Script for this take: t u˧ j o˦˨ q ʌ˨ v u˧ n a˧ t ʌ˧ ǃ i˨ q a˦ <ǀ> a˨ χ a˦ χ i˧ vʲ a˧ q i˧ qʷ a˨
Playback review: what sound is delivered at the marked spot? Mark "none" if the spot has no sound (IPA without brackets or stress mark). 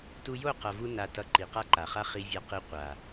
ǃ